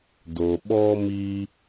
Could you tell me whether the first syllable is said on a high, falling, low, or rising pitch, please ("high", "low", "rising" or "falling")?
low